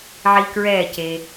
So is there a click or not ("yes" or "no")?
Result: no